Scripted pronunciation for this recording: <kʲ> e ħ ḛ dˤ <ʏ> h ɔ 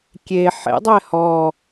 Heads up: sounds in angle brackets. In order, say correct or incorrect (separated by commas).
correct, incorrect